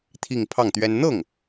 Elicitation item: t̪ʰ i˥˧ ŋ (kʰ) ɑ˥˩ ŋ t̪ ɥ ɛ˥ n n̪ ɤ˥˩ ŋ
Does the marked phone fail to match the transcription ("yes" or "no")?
yes